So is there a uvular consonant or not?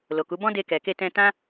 no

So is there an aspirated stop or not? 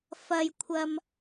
yes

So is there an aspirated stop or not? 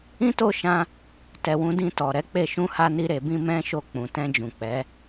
no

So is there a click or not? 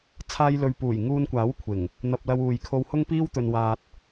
no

